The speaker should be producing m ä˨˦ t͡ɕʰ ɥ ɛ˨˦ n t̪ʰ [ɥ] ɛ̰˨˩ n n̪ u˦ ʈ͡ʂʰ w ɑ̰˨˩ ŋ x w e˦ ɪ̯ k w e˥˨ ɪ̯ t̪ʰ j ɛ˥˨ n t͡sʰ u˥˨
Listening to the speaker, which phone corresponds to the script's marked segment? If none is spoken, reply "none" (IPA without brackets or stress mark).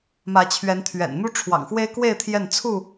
ɥ